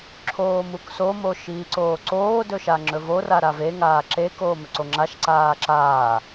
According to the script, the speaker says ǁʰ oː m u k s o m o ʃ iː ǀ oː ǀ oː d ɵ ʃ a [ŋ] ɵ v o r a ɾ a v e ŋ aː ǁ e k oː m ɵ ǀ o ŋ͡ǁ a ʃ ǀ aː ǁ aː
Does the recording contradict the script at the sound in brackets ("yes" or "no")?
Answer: yes